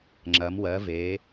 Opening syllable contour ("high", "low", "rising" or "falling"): rising